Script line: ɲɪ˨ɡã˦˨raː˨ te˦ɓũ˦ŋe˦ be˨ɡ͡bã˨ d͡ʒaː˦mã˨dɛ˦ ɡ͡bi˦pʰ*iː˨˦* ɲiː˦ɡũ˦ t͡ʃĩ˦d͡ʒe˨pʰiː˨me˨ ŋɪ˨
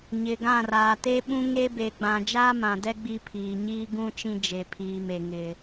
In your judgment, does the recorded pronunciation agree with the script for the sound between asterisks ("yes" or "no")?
no